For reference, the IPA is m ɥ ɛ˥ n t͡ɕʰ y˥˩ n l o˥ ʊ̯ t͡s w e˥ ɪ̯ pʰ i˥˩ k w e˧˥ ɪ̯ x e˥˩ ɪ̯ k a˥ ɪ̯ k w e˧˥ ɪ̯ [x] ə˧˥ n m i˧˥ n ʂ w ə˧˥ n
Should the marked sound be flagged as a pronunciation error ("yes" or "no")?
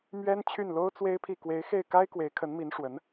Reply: yes